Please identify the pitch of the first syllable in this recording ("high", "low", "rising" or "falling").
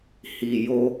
low